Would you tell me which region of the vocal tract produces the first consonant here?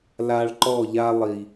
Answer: tongue tip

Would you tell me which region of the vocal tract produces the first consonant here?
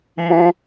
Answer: lips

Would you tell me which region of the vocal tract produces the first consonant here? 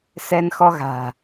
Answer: tongue tip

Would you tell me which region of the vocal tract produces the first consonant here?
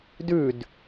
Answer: tongue tip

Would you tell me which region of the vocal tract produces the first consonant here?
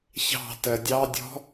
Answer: palate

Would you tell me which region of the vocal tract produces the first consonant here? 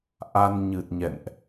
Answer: throat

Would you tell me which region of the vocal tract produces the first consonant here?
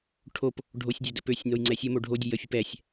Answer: retroflex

